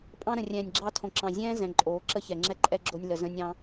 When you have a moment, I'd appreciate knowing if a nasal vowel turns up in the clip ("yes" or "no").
yes